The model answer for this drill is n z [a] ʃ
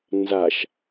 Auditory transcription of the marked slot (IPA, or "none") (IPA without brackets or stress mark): a